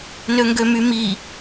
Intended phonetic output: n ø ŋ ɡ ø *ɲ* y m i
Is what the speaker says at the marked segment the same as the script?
no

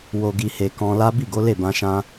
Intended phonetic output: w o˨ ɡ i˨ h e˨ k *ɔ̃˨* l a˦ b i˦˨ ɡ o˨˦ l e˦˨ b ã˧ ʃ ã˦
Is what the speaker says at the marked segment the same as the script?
no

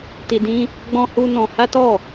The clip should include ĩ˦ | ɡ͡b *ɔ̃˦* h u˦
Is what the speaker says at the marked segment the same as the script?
yes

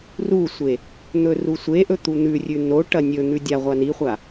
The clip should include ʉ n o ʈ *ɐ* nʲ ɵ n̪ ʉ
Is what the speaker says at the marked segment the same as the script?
yes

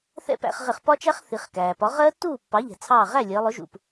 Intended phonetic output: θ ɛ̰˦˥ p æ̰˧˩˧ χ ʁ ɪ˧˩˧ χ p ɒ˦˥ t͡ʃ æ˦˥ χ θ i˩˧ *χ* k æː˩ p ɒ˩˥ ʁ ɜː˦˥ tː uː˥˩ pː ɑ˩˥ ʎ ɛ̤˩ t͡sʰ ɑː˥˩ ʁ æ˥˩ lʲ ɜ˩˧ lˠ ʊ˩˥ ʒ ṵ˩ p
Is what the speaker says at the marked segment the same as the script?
yes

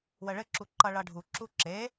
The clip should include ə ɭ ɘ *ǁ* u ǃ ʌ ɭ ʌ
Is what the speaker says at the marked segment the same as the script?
yes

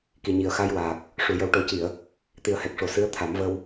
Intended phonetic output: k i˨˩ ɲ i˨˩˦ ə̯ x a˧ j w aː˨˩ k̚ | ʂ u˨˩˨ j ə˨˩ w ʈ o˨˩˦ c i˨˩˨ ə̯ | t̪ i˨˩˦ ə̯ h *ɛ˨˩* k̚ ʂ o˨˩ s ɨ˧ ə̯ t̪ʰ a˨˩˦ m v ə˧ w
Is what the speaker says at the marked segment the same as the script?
yes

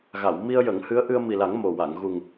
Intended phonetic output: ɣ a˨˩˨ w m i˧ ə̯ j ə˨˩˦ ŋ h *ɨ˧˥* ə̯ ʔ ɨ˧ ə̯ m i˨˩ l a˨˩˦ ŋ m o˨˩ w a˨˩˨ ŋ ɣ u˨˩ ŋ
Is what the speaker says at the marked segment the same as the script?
yes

